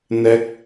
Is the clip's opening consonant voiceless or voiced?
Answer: voiced